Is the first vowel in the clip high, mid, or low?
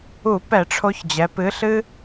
high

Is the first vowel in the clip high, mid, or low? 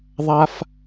low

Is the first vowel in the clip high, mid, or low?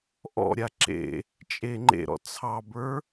mid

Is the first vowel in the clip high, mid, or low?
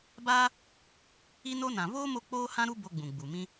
low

